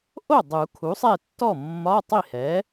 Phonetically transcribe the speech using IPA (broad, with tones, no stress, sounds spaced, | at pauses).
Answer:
ʔ o˥˩ dˤ u˨˩˦ kʰ u˩˥ sˤ ɛ˥˩ tː ɔ˥˩ mː ɒ˧˥˧ tˤ i˥˩ h ɛ˩˥